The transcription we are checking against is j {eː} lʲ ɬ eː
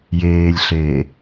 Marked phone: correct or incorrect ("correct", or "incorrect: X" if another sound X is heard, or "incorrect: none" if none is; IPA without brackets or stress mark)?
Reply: correct